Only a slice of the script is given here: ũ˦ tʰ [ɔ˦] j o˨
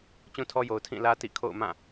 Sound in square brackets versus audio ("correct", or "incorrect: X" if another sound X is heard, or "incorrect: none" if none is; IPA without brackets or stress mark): correct